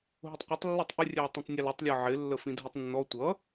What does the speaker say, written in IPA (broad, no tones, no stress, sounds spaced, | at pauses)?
ɦ ʊ tˤ qʷ ʌ tˤ lː ɪ tˤ ʔ ɪ rʲ ɛ w tˤ ĩ tˤ nʲ ʌ l ɪ tˤ lʲ ə˞ ʕ ɪ lː ə f ĩ dʱ i tˤ nː ɔ tʷ ʌ